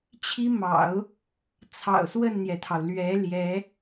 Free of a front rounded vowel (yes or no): yes